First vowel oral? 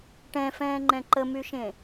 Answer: no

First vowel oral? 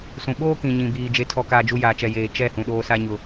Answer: no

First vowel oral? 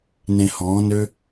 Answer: no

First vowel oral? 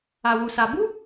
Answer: yes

